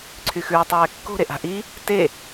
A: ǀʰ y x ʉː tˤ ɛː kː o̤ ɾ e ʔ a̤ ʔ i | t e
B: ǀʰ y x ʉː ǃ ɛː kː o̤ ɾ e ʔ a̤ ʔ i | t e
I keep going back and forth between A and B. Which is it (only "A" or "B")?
A